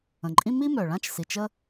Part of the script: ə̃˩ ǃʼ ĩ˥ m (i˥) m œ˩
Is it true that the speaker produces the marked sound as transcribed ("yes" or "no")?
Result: yes